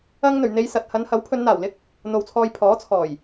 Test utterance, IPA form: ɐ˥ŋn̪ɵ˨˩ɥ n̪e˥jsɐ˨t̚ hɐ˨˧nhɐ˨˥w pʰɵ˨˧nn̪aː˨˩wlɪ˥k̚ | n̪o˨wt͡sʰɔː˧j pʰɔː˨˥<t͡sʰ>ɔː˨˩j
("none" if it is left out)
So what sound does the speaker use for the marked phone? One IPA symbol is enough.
t͡sʰ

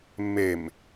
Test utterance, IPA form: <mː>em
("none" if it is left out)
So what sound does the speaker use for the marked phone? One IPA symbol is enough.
mː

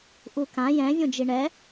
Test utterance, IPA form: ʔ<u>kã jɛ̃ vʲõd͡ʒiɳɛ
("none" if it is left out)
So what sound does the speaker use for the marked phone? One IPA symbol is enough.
u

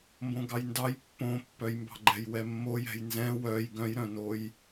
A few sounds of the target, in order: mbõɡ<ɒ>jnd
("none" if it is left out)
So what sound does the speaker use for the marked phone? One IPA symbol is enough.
ɑ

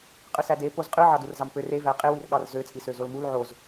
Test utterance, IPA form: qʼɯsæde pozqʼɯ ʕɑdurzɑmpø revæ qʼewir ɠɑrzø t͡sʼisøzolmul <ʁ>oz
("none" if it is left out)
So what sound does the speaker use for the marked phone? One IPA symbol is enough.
ʕ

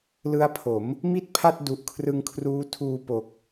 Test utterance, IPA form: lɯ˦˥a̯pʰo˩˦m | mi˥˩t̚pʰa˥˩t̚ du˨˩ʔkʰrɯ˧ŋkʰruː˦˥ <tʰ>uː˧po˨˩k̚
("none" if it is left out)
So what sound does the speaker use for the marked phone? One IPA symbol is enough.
tʰ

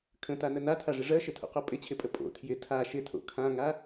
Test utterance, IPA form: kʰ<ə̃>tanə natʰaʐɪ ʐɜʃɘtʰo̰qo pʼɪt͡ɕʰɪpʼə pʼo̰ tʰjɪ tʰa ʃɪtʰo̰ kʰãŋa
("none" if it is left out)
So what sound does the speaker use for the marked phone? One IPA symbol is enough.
ə̃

